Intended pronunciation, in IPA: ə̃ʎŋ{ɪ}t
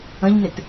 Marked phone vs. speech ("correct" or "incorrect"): correct